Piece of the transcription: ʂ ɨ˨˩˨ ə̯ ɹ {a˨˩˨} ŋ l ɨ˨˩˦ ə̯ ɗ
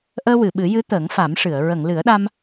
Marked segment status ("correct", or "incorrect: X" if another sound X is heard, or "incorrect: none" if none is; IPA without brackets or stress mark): incorrect: ə˨˩˨